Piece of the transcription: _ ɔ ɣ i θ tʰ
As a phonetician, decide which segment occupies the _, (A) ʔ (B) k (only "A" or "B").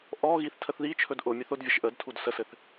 A